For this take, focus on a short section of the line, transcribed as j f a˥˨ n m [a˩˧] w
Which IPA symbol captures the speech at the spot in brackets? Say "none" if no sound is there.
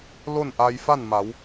a˩˧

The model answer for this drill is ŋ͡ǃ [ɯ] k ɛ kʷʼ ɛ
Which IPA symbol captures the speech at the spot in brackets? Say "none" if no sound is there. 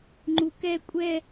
u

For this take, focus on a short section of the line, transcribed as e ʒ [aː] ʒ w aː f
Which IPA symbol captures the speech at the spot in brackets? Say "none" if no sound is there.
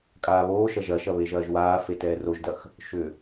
ɐː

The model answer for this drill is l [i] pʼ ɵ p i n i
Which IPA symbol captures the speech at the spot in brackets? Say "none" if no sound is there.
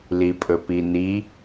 i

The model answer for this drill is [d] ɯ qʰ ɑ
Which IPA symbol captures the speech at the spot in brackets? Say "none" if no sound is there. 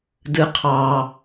d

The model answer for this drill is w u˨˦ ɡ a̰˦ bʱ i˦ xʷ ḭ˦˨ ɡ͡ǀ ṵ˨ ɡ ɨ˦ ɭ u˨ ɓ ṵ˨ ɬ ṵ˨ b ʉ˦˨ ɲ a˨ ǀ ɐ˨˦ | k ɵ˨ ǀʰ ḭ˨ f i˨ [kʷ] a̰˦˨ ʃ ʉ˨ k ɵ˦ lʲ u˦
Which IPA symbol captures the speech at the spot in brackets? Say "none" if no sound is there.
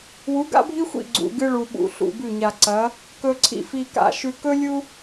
k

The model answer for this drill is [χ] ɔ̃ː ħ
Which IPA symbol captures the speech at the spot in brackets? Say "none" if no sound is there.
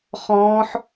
χ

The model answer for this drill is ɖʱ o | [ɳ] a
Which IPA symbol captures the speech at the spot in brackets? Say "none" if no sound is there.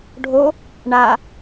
ɳ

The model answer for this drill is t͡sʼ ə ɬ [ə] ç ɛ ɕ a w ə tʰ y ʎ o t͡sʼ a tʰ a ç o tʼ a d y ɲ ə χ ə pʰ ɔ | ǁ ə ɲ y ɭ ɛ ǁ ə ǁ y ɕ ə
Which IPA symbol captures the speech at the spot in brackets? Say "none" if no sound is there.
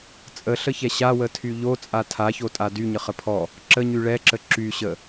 ə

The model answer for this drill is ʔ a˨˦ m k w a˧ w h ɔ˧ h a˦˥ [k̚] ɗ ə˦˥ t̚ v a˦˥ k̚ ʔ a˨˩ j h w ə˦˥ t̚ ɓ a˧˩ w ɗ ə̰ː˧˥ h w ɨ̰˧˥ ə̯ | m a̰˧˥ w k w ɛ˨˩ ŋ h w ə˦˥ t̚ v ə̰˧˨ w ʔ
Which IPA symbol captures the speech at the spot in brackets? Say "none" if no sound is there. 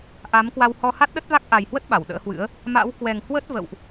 t̚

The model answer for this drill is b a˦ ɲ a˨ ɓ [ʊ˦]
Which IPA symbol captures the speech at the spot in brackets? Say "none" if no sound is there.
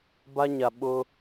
ʊ˦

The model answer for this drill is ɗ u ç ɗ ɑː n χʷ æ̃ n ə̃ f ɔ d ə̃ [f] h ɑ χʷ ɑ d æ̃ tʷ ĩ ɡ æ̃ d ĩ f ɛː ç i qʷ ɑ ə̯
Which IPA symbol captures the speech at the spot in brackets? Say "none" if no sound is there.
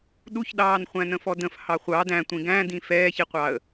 f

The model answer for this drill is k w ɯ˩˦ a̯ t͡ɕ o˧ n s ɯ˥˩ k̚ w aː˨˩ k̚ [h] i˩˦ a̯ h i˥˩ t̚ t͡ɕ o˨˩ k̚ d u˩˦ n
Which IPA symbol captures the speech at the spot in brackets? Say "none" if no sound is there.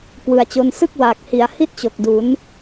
h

